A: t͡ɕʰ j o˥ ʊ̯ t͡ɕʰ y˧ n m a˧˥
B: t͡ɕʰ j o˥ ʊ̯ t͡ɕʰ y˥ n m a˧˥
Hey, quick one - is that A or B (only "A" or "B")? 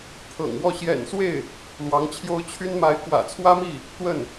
B